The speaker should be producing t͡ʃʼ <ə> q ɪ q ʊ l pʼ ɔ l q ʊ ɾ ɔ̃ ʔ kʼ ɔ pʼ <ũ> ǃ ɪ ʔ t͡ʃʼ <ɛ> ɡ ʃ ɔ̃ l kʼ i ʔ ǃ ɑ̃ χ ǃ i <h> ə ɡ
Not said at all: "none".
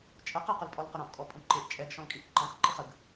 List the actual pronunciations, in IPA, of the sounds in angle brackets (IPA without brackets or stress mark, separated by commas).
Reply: ə, ũ, ɛ, χ